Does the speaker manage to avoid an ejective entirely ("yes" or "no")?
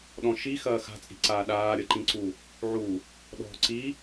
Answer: no